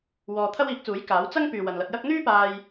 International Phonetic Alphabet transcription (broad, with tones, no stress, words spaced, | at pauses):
wɔː˧ t̪ʰɐ˥wiː˨˥k̚t͡suː˨˥j kaː˨˥w t͡sɐ˥ŋ pyː˨wɐ˨nlɐ˧t̚jɐ˥k̚ n̪yː˥paː˧j